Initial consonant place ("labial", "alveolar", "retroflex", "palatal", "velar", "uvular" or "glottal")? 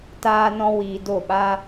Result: alveolar